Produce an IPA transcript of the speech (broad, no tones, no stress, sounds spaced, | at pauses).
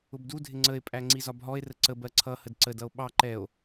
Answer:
ʊ b d u dʱ ɪ ŋ͡ǀ ə e̯ pʼ æ ŋ͡ǀ i z ɒ b ɦ ɔ e̯ r ə ǀ ə b ɜ ǀʰ ʌ h ə d ǀ ə d ʌ o̯ ɓ ɑ ǃ ɛ o̯